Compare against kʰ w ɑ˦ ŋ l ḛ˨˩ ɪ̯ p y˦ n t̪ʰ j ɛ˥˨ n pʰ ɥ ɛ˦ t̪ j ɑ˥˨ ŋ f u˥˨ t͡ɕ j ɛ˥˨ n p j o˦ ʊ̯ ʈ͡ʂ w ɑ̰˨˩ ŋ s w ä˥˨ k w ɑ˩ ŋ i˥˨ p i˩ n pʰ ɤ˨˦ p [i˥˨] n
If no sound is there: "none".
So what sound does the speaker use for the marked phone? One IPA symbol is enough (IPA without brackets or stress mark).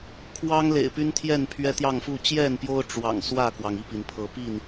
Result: i˥˨